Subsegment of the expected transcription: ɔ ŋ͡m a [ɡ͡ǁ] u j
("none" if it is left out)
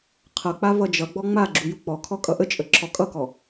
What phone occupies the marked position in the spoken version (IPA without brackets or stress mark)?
ɡ͡ǁ